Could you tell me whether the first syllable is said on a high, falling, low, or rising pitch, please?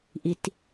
low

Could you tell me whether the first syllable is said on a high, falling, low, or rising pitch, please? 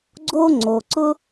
high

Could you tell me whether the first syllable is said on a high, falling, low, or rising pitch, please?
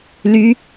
high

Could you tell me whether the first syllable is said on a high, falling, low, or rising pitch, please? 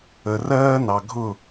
low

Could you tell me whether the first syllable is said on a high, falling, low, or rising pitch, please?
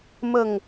low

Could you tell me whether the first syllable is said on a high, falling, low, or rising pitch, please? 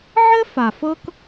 high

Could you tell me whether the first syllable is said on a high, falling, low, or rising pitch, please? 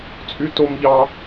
high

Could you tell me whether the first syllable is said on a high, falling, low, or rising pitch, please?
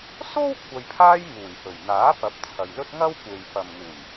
high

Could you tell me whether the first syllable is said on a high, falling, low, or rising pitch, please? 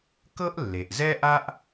high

